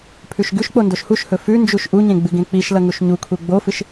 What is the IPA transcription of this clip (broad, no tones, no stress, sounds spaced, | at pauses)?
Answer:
pʰ ʉ ʃ ɡ ʉ ʃ k͡p o n d o ʃ h u ʃ h ɵ f ʉ n d͡ʒ u ʃ ʔ u ɲ ẽ ɡ͡b ɨ ɡ ẽ k͡p i ʃ l ɐ ŋ u ʃ ɲ u kʰ u ɡ͡b o f ɨ ʃ